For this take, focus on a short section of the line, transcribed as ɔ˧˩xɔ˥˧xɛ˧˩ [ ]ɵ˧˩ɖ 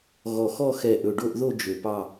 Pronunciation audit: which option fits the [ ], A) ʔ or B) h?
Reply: A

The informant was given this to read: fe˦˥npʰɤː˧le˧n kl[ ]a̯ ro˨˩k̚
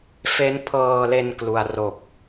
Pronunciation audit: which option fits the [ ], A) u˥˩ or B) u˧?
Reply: B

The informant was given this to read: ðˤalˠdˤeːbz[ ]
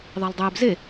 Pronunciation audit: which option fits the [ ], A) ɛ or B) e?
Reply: B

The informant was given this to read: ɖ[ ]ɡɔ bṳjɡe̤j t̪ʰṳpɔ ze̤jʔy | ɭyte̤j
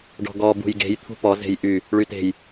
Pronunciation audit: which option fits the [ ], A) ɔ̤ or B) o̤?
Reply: A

